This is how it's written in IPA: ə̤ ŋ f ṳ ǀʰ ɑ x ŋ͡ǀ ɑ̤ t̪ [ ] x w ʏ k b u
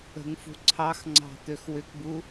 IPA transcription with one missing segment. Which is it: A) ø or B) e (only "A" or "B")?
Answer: A